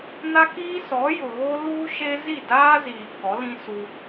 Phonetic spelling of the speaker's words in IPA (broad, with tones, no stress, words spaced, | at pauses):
na˦kiː˦ sɔ˨˦jʊ˨ɣo˦ luː˦ʃe˦zi˦˨ daː˦ziː˨ kɔ˨˦lĩ˦ su˦